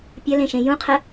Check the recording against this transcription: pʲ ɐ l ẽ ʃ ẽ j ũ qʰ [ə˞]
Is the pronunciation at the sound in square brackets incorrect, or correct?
incorrect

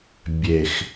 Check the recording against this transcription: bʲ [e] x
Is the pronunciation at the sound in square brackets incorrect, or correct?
correct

